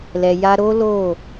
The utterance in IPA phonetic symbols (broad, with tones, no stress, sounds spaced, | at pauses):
l ɛ˨ j a˧ ɾ o˦ l o˦˨